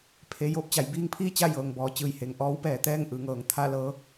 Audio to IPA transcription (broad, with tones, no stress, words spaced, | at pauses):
pʰe˩˧ joː˧˩p̚t͡ɕa˩˧j biː˧˥ŋpʰiː˥˨t͡ɕa˥˨ jɤː˩ŋbɔː˩˧t͡ɕɯː˧˩j he˩ŋ ʔɔː˧˥wpɛː˩˧ t̪ɛː˥˨ŋʔɯː˩ŋɤː˩˧ŋ t̪ʰa˥˨lɤː˧˥